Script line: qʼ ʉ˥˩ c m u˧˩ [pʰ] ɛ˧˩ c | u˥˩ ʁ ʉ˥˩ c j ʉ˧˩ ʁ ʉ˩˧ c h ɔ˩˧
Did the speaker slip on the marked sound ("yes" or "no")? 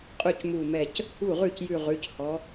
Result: yes